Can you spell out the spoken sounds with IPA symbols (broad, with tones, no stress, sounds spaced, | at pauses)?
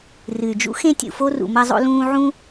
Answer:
r ɨ˩ y̯ d͡ʒ ṵ˥ x ẽ˥ tʲ ṵ˨ f o˥ r ṵ˨ m ɐ˦ zˤ o̰˦ l ũː˦ ʕ ũ˥